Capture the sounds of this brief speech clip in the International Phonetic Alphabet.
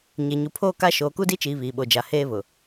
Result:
ɲ e˨ ɲ u˨ pʰ oː˦ k a˦ ʃ oː˨ k u˦ d i˦ t͡ʃ iː˨ β iː˨ ɓ o˨ d͡ʒ a˨ h eː˦ β ʊ˨

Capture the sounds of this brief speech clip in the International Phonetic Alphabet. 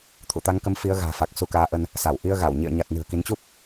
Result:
t̪ʰ ṵ˧˨ t̪ a˨˦ ŋ k ə˨˦ m f i˨˦ ə̯ ɣ a̤ː˨˩ f a˨˩ k̚ s u˧ k aː˨˦ ʔ ə˧ n | s a˧˩ w ʔ i˧ ə̯ ɣ a˧˩ w ɲ ḭ˧˨ ə̯ ɲ a˨˩ t̚ n ɨ̤˨˩ ə̯ k i˨˦ n t͡ɕ u˦˥ p̚

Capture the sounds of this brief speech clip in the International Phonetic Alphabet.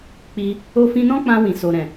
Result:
k͡p i˧ | o˧ f ĩ˧ n ɔ̃˦ k͡p ã˧ w ĩ˨ s o˨ ɾ ɛ̃˨

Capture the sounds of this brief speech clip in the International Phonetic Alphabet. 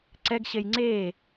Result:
ǀ ɛ ɡ ɕ e j ŋ͡ǀ e

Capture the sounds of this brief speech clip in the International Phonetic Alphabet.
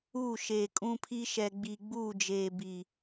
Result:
uː˦˨ ʃ eː˨ kʼ ũ˦ pʰ i˦ ʃ ɛ˨ ɡ͡b i˨ ɡ͡b uː˦˨ d͡ʒ eː˨ b i˨

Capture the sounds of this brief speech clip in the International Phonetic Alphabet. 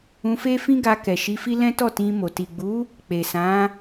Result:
ũ˧ f e˦ f ĩ˦ ɡ a˧ k ɛ˨ ʃ i˧ f i˦ l ɛ̃˦ t ɔ˦˨ t ĩ˧ m o˨ t i˨ ɡ͡b u˨˦ | k͡p e˨ s ã˨˦

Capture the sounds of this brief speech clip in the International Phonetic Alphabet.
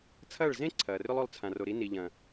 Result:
t͡sʰ ɐː˦˨ ɭ z ẽ˦ ǀʰ ɐː˨ r ʏ˦ lˠ o˧ lˠ t͡sʰ ã˨ r o˨ ɾ i˨˦ n i˨ ʎ ɐ̃˨

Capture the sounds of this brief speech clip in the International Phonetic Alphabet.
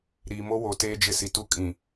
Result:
ɾ iː˨ m o˦ w o˨ t eː˦ d͡ʒ ɪ˦ s i˨ t u˦ kʼ ĩ˨

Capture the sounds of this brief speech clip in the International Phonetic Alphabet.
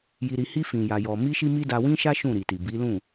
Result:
j i˧ ɾ i˧ h i˦ f ĩ˧ j a˧ j ɔ˧ m i˦ ʃ i˦ m i˦ d a˧ w ĩ˦ ʃ a˦ ʃ ũ˦˨ ɾ i˨ t i˨ b i˨˦ l ũ˦˨

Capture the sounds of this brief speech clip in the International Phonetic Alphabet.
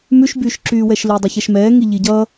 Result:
m ʉ ʃ b yː ʃ ǁ yː w ɛ ʃ l y dˤ i ç ɛ ʃ m ɛː ŋ i ʎ i ɟ ʌ

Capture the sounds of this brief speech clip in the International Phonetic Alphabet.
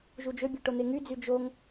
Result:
ʒ u d͡ʒ ø bʲ ø ʈ o n̪ e ŋ y d͡z y d͡ʒ o ŋ

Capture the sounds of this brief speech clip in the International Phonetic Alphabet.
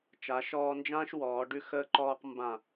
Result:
t͡ʃ a˩˧ ʃ ɔː˧ n d͡ʒ ãː˥ ʃ w ɔː˩˧ ɖ ʉ˧ x əː˧ ǃ ɔː˧ q m b ã˧˩

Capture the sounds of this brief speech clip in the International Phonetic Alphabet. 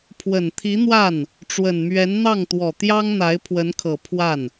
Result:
pʰ w ə˨˩ n t̪ʰ i˧˥ n̪ w a˥˩ n | ʈ͡ʂ w ə˨˩ n m ɥ ɛ˧˥ n n̪ ɑ˥˩ ŋ t̪ w ɔ˨˩ t̪ j ɑ˥ ŋ n̪ a˧˥ ɪ̯ pʰ w ə˧˥ n kʰ ɤ˨˩ pʰ w a˥˩ n

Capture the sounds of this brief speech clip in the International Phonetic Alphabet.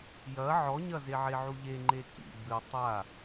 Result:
j ɐ ʕ ɔ ɲ ɐ z e ʕ e ʕ u ʎ e ŋ͡ǃ e k ḭ b ɨ tˤ a

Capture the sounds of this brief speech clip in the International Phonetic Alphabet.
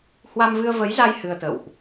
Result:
h w a˧ m v ɨ˧ ə̯ v ə˨˦ j z a˧ j h ɨ˧ ə̯ t̪ ə̰˧˨ w ʔ

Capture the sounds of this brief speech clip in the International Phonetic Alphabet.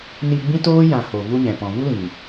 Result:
n i˧ ɡ͡b ĩ˦ t oː˦ j ã˨ h o˨ v u˦ ɲ ɛ̃˨ p ɔ̃˨ v u˦ l ĩ˨

